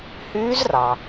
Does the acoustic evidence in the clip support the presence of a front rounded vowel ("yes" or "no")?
yes